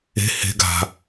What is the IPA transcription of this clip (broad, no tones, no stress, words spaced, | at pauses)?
e̤ he̤ ɡa̤